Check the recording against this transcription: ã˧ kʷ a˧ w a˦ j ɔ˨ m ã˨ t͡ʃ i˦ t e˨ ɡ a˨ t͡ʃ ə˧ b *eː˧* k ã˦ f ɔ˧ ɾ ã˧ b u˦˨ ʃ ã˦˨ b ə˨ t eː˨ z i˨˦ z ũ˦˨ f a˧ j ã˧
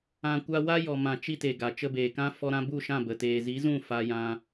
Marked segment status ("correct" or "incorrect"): incorrect